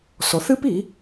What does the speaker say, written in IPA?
s ɔ˨˦ θ ɨ˦ p i˨˦

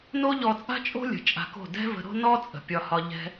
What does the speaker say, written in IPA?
n o˦ ʎ ɔ˧ t͡sʼ a̤˦ t͡ʃʼ o̤˦ lʲ ə̤˨ t͡ʃʼ a̤˧ k o̤˦˨ d ɛ̤˦ v ə̤˧ ɾ o̤˦ n ɔ˦ t͡sʼ ə̤˨ pʲ ɒ˧ h ɒ˧ ʎ ɛ̤˦

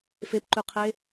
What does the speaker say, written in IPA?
f e p ǃ ʉ qʰ e

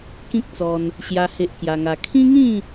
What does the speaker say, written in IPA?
k ĩ˦ k̚ t͡s ɔ˧ n | ɕ j a˦ h e˦ ʔ k j a˧ ŋ a˧ kʰ ĩ˦ ŋ ĩ˥˧

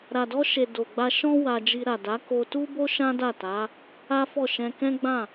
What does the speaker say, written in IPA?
ɾ a˨ d ɔ˧ ʃ e˨ d o˨ ɡ͡b a˧ ʃ ɔ̃˦ w a˧ d͡ʒ i˧ ɾ a˨ d a˨˦ k o˧ t u˦ b o˦ ʃ ã˦ d a˦˨ t a˨˦ | a˦ f ɔ˦˨ ʃ ɛ̃˧ k ɛ̃˦ ɡ͡b ã˦˨

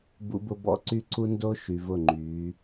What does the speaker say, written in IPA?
b ṵ˦ b ʊ˦ b ɔ̰˦ ǀ y˦ ǀ u˦ n d o˦ ʃ y˨ v ʊ˦˨ ŋ͡ǃ y˨˦

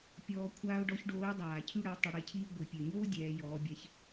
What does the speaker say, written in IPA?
pʲ ɔː˧ kʷʰ aː˥ ʊ̯ ɖ ɔ˧˥ ç ɖ oː˧˥ ɪ̯ dˤ aː˩ cʰ y˥ ɽ ə˩˧ ʊ̯ tˤ ə˧ ɽ e˧ cʰ iː˥ ɡʷ i˩ pʲ ø˩ ɲ oː˥ dʲ ɛː˩˧ j ɔː˩˧ bʲ ɛ˧ ç

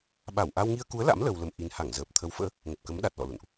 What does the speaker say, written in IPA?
ɓ a˧˩ w ʔ a˧ w ŋ i˧ ə̯ k u˨˦ ə̯ l a̰˧˥ m l ə˧ w l ə˧ m ʔ i˧ n h a˧˩ ŋ z əː˨˩ p̚ t̪ʰ ə˨˦ w f ə̰ː˧˥ | ŋ ə˨˩ p̚ k ə˨˦ m ɗ a˨˩ t̚ l ɔ̰˧˨ l ṵ˧˨ n ʔ

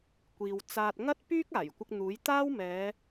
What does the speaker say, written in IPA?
kʷ iː˨ w t͡s aː˧ t̚ ŋ ɐ˥ t̚ p yː˥ k̚ aː˨˩ j kʷ ɪ˧ k̚ n̪ uː˨˥ j t̪ aː˥ w m ɛː˨˧

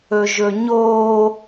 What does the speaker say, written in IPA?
ɵ ʒ ɵ ɲ oː

